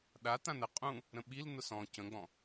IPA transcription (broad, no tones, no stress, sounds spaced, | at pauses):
ɗ a t̪ ã n ə qʼ ũ | ɾ ə̃ ɓ i l n̪ ʊ s ɔ̃ c ə̃ ɡ͡b ɔ̃